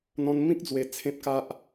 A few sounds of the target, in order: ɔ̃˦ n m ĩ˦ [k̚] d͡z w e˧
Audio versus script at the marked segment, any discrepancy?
no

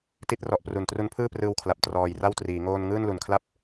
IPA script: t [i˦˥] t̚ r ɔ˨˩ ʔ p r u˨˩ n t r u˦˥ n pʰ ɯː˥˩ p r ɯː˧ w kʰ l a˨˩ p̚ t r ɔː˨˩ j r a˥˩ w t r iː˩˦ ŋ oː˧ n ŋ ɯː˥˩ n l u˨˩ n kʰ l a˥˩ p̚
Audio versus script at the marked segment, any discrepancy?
no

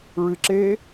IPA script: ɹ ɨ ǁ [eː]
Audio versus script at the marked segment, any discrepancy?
no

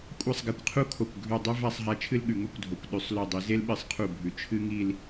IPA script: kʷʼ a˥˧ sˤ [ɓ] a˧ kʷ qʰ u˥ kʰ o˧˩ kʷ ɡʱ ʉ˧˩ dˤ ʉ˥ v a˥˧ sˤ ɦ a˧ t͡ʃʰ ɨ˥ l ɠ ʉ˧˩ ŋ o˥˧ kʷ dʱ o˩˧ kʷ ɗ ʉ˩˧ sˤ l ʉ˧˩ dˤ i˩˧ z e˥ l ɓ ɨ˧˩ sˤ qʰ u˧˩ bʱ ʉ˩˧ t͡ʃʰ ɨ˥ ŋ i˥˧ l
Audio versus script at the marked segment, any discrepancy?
yes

